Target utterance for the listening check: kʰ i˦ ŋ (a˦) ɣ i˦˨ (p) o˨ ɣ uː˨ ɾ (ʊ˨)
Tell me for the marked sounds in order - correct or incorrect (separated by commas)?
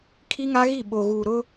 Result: correct, incorrect, incorrect